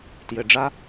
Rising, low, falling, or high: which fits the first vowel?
low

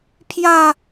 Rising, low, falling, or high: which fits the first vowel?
falling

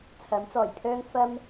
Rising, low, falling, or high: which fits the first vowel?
rising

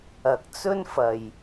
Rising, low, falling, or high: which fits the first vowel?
low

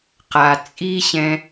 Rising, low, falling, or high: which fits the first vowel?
low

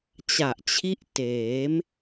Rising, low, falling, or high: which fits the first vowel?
low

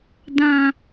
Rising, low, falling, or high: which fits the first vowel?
low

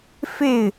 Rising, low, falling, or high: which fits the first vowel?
falling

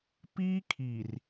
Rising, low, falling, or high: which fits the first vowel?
high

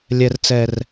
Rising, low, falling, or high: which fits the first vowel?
low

